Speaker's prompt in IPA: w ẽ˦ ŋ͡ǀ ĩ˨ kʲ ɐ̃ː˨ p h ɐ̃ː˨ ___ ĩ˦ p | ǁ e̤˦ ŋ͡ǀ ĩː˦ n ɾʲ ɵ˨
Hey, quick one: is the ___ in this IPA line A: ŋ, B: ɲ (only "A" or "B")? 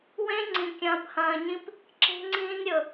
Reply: B